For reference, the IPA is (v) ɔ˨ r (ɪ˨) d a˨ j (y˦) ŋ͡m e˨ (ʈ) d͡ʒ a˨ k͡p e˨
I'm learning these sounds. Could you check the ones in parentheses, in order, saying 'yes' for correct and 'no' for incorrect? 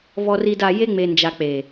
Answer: yes, no, no, no

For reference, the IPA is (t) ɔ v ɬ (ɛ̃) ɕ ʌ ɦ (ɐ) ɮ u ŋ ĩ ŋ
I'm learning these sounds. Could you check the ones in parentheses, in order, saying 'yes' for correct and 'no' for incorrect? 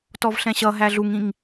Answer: yes, yes, no

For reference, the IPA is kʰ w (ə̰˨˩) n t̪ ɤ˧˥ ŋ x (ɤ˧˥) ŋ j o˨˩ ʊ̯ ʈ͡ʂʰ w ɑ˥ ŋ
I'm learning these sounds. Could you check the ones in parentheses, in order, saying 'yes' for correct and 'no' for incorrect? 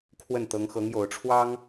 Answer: no, yes

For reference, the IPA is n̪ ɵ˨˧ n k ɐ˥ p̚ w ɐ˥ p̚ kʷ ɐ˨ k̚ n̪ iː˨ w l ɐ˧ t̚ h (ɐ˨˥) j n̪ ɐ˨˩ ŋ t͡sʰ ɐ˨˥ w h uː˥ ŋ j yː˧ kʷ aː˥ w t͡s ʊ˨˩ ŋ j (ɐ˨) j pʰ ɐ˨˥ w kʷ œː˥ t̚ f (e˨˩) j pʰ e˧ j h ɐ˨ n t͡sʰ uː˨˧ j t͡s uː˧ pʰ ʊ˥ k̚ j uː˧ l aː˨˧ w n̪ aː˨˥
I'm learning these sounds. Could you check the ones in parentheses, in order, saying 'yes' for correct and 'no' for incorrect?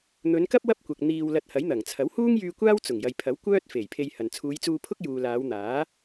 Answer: yes, yes, yes

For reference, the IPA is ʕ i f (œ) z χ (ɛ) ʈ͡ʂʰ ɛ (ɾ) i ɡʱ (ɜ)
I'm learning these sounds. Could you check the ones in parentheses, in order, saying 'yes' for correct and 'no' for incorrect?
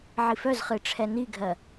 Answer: yes, no, no, yes

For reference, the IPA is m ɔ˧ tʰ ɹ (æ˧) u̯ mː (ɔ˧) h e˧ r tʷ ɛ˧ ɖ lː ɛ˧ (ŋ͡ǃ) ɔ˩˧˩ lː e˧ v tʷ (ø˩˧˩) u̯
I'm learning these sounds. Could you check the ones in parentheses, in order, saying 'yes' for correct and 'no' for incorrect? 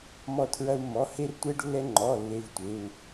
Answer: no, no, yes, no

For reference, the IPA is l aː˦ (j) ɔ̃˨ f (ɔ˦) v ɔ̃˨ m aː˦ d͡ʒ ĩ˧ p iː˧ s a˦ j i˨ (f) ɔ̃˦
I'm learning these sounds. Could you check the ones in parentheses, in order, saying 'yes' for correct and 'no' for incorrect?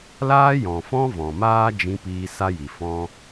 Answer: yes, no, yes

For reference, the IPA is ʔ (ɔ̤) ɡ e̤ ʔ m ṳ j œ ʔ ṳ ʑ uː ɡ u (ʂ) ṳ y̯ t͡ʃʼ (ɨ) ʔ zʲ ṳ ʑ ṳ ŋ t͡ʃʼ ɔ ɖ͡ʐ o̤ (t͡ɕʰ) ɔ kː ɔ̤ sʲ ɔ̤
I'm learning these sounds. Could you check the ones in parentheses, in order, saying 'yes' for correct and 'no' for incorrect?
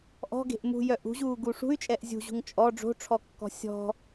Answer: yes, yes, no, no

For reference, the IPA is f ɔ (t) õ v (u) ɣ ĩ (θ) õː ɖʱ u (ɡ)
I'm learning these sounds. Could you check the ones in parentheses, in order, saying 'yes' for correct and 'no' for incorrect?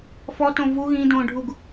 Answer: yes, yes, no, yes

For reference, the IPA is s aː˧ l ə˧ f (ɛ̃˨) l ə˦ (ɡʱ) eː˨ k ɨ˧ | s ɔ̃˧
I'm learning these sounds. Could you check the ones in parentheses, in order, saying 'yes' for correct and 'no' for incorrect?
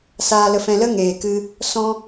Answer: no, no

